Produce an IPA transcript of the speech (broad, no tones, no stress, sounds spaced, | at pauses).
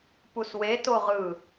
p u s w e t o ʁ ɯ